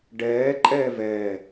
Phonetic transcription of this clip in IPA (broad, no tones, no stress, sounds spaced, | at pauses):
ɖ ɛː ǃʼ ɛː v ɛː